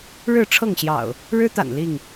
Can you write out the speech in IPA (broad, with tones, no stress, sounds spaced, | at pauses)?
ɻ ɻ̩˥˨ ʈ͡ʂʰ ɤ˥˨ ŋ ɕ j ɑ̰˨˩ ʊ̯ | ɻ ɻ̩˦ t̪ a̰˨˩ n l i˥˨ ŋ